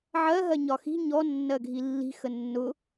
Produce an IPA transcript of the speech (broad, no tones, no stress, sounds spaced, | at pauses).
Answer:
ʕ ɜ ɦ ɜ ɲ ɒ x i̤ ɲ ɔ nː ɜ ɡʱ i lː i̤ x ə nː ʊ